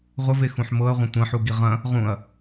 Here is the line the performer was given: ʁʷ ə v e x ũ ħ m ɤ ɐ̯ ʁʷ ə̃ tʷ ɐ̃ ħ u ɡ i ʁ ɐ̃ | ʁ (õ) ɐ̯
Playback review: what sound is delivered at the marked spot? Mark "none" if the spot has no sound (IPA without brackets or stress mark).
ũ